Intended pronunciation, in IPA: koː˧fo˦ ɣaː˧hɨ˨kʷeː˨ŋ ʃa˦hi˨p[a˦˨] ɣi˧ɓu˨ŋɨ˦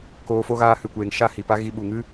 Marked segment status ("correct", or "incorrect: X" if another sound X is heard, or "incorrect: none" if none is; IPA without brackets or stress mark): incorrect: a˦